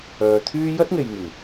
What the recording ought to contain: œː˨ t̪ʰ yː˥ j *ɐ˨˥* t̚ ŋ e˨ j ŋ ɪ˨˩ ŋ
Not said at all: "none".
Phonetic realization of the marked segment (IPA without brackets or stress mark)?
ɐ˥